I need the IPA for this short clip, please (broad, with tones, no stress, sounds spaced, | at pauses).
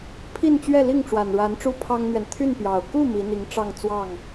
pʰ i˥˧ n t͡ɕ ɥ ɛ˥˧ l i˥˩ ŋ ʈ͡ʂ w a˨˩ n ɻ a˧˥ n ʈ͡ʂ u˥ pʰ ɑ˥ ŋ n̪ ɥ ɛ˨ n t̪ʰ y˥˩ n p j ɑ˨˩ ʊ̯ k u˥˩ m i˧˥ n̪ i˧˥ ŋ ʈ͡ʂ ɑ˥˧ ŋ t͡s w ɑ˥˩ ŋ